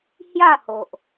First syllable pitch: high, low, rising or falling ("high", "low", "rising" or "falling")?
falling